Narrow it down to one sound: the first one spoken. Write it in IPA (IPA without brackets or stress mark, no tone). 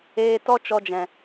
eː